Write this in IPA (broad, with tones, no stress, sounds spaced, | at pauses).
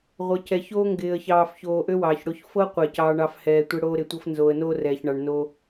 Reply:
ʁʷ ɤ˨ c ɛ˨ ç oː˦ ŋ ɡ ɪː˨ ə̯ ç ɑː˨ f ç oː˨ ʔ ø˦ w ɑː˨ ç ɽ o˦ ç f ɤ˦ qʷ ɪː˦˨ c ɑː˦ ɳ ɑ˦ f h ɛː˨ tʷ ɪ˦ ɽ oː˦ ɾ ɪ˨ tʷ ɤ˦ f n z oː˨ ə̯ n oː˦ r ɛː˨ ç ɳ ɑ˨ ɳ n o˦